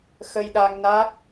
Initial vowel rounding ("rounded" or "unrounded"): unrounded